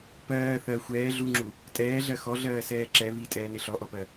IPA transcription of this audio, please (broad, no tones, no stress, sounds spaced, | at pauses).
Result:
p ɜː θ ɜ xʷ ɛː ɮ u ŋ͡ǁ u | tʼ ɛː ɮ ɜ x ɔ ɮ ɜː s ɛː ǁ ɛ β i tʼ ɛː n ɪ ɬ ɔ ʔ ɔ p ɜ